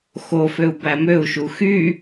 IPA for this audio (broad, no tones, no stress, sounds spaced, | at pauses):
x o f ø u̯ b æ m ø u̯ ʃ u x y